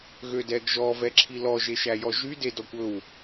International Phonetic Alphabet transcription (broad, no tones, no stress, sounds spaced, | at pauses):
ɣ ø d ɛ ɡ ʒ ɔ v ɛ ǁʰ i l ɔ ʒ e ʃ æ j ɔ ʒ y d e d ɔ kʷ ɵ w